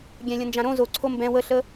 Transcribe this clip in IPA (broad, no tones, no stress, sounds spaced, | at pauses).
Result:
ɡʲ ɛ̃ lʲ ə̃ n d͡ʒ ã ɾ õ z o ǀʰ o m b ɛ̃ w ə ɬ ə